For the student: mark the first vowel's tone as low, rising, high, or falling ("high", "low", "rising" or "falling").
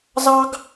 high